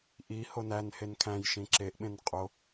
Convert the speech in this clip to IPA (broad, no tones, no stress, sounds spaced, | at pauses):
ʔ i h o n æ n h e n kʰ æ̃ j ʃ ĩ ǁ e ʔ ɓ ẽ n qʼ o